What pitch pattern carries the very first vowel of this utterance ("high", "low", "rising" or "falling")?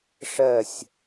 falling